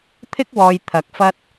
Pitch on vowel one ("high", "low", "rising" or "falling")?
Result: high